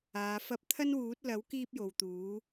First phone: aː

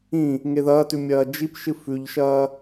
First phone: ĩ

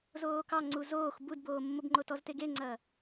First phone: z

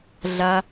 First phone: ɮ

